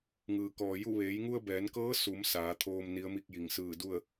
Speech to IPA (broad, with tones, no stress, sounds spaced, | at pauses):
ŋ ɯː˩ k ɔː˩ j u˥˨ ʋ eː˩˧ j ŋ u˧ ə̯ b ɛː˩˧ n k ɤː˧˥ s u˩˧ m s aː˩˧ t̪ʰ oː˧ m n i˧˥ ə̯ m i˥˨ k̚ j i˧˩ ŋ s ɯː˧˩ d u˥˨ ə̯